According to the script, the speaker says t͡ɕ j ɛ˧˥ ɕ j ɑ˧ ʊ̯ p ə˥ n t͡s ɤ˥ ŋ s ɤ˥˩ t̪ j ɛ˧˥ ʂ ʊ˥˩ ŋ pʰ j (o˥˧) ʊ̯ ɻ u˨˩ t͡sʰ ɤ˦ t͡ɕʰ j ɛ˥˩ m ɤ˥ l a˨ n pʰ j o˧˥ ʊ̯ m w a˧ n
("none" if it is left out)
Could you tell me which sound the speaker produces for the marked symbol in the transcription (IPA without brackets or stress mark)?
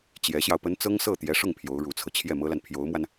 o˧˥